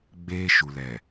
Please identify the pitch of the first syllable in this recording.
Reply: high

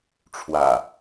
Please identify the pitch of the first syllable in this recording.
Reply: low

